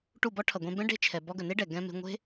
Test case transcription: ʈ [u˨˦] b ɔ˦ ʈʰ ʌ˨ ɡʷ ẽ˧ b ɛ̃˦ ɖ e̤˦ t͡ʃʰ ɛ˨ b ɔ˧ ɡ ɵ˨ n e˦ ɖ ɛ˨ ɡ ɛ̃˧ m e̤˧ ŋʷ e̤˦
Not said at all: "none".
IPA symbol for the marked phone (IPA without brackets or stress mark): u˦˨